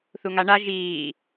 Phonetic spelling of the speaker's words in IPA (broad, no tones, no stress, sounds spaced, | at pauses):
θ u ŋ a ɳ a ʒ iː